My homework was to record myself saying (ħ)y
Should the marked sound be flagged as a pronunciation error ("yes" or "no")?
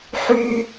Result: no